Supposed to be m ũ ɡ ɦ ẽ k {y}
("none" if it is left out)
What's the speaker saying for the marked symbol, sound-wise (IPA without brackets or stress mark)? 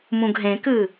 ɨ